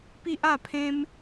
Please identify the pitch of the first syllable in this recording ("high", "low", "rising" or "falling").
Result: high